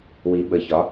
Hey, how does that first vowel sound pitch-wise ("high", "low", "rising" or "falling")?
rising